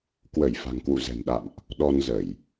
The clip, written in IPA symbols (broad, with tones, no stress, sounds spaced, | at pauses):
k w ə˧˩ j f a̤˨˩ ŋ k w ṵ˧˨ z ɛ̤˨˩ n ɗ a̰˧˨ m ʔ | ɗ ɔ˧ n z ə˧˩˨ j